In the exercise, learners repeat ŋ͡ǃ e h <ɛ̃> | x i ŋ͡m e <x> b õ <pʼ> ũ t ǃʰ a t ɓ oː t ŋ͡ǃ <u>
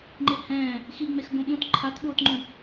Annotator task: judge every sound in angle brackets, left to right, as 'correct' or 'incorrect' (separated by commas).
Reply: incorrect, correct, incorrect, incorrect